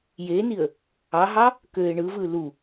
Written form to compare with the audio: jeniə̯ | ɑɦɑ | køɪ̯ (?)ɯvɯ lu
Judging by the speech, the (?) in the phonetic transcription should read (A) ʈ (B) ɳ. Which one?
B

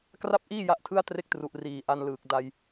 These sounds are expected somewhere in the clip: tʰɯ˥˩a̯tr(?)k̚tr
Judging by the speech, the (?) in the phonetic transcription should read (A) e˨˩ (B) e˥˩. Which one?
B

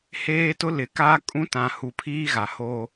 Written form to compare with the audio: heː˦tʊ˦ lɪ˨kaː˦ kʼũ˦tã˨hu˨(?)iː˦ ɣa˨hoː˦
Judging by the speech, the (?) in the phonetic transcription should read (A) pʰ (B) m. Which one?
A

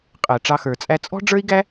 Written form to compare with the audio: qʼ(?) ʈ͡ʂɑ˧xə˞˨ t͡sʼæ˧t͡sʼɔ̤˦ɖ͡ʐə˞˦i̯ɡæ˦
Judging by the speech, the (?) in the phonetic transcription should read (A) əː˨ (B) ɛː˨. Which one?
A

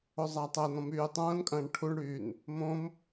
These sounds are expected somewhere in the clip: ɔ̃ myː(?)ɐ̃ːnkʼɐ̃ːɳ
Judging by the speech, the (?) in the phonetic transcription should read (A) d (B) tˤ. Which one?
B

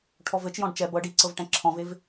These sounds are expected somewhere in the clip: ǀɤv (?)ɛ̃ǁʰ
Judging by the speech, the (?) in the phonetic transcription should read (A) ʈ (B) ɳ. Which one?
A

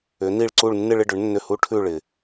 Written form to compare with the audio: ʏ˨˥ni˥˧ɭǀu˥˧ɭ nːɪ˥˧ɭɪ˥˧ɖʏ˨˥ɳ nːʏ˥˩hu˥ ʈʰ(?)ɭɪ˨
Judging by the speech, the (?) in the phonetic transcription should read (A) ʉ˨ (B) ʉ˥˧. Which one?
B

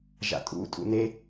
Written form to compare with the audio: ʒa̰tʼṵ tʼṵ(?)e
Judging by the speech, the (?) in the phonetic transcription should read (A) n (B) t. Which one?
A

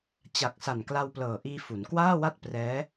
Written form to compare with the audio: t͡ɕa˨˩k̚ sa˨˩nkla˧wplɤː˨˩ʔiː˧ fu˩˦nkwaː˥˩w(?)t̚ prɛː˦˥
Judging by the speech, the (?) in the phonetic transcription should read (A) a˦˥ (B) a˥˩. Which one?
B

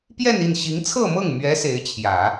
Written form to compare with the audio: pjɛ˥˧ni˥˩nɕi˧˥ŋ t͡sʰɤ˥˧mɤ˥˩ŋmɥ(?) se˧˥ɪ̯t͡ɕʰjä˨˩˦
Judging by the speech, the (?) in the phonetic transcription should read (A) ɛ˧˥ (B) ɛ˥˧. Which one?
A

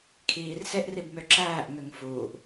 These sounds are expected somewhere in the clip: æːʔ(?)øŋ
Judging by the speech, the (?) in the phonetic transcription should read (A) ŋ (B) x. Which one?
A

